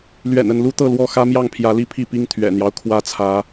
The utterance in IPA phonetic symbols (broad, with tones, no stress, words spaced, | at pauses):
lɥɛ̰˨˩nə˥˨n lu˦t̪ɤ˥˨lwɔ˦ xä˦mjɑ˥˨ŋ pʰjä˨˦li˥˨pʰi˥˨pi˦ŋ t̪ʰɥɛ̰˨˩n̪jɑ˦ʊ̯ kʰwä˦t͡sʰä˨˦